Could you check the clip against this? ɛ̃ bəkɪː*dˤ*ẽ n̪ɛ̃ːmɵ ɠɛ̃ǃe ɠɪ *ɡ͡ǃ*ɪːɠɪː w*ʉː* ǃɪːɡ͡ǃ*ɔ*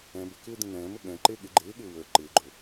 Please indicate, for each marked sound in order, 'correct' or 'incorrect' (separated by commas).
incorrect, correct, incorrect, incorrect